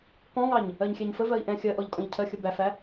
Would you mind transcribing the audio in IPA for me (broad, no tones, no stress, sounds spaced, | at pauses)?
k ɔ̃ ŋ ɑ ɲ | ɜ ɲ xʲ ɛ ɲ f ə v ɜ i̯ ʔ ɛ̃ xʲ ɜ ʔ ɔ ʎ kʼ ɔ̃ ʎ cʰ ɜ xʲ ə b æ f æ